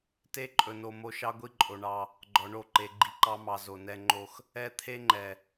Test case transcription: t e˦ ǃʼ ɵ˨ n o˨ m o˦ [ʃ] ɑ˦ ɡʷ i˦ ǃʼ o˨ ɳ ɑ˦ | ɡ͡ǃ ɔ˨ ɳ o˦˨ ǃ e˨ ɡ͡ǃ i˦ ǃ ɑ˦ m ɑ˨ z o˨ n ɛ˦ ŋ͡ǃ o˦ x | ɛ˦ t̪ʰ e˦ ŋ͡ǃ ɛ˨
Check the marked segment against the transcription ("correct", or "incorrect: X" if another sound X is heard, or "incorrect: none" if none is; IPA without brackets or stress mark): correct